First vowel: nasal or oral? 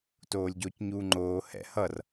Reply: oral